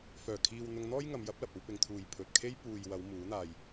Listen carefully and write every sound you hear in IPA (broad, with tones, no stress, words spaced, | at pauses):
fœː˨˩kʰiː˨w n̪ʊ˧ŋn̪ɔː˥jŋɐ˨˧m jɐ˨˥p̚lɐ˨p̚ ɐ˧wpɪ˨ŋt̪ʰuː˨j pʰɵ˨t̚kʰe˥j puː˨jwɐ˨˧w muː˨˥n̪aː˧j